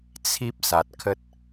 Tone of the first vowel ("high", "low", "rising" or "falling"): high